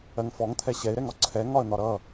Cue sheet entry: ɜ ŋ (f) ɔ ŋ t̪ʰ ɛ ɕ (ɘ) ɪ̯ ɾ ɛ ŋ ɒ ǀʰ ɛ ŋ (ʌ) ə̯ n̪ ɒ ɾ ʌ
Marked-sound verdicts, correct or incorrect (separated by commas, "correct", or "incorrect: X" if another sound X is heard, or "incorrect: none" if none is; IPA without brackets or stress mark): correct, incorrect: ɛ, incorrect: ɒ